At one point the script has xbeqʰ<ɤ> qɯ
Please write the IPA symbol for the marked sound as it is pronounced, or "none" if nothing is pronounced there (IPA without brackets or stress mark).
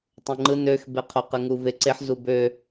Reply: o